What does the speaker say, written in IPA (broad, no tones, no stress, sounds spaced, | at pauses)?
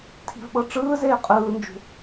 tʰ i̤ v ɓ ɤ ʈ͡ʂ ɯː z eː qʼ ɯː n d͡ʒ ṳ